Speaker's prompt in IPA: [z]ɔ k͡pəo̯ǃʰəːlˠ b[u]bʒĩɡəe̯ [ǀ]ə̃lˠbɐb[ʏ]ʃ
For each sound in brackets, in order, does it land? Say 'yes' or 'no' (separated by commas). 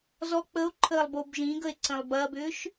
yes, no, yes, no